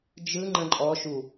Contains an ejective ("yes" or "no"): yes